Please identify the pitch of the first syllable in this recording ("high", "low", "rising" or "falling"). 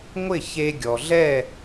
falling